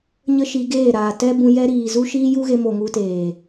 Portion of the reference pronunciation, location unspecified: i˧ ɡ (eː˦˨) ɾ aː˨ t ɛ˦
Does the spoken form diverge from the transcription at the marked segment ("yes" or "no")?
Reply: no